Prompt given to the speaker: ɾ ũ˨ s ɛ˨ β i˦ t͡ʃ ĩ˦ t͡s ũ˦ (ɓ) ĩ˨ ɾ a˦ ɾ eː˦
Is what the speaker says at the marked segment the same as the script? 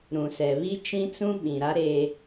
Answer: yes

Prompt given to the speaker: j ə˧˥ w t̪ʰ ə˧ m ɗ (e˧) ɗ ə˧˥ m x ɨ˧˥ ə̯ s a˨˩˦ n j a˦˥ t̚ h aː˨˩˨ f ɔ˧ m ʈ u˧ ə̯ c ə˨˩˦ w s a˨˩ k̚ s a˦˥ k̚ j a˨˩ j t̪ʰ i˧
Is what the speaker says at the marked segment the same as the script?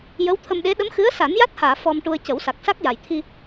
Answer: no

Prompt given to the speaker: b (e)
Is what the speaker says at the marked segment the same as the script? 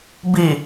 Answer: no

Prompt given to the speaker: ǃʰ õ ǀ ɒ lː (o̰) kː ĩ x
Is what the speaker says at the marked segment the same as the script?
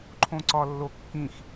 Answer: no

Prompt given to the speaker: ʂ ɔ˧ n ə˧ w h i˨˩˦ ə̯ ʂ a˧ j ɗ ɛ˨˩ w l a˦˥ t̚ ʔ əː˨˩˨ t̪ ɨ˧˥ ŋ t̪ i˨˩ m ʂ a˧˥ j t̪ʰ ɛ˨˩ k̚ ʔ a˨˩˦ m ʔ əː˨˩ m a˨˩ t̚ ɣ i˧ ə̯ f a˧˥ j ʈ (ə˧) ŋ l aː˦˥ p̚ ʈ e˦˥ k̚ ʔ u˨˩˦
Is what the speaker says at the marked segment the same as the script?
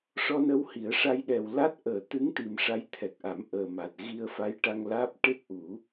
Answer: no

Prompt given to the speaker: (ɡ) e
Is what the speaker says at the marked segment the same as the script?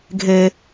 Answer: no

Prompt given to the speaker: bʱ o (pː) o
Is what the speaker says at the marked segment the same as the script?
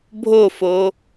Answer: no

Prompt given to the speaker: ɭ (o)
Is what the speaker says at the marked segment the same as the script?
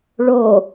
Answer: yes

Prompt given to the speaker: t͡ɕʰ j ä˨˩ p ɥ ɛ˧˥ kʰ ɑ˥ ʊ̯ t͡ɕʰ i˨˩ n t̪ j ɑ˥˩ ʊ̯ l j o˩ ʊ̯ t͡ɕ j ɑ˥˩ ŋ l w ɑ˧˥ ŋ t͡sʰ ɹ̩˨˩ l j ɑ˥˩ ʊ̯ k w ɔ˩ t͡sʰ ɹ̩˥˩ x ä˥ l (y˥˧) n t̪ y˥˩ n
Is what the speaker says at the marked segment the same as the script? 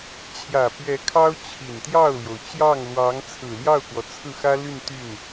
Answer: yes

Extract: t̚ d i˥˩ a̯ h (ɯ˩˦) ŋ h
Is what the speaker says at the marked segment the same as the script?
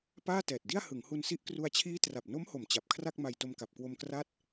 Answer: yes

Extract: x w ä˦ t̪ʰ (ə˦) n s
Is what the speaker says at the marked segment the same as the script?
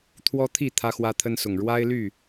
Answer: yes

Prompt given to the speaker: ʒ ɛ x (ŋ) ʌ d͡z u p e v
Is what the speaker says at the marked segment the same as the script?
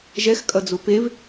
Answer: no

